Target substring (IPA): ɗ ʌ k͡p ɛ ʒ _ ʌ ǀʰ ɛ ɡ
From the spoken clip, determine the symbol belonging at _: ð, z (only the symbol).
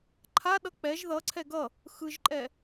ð